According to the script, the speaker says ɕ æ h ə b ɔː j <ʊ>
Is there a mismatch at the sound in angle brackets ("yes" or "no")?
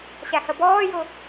no